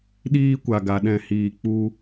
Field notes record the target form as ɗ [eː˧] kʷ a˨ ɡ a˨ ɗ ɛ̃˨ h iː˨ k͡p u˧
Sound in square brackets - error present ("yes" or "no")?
yes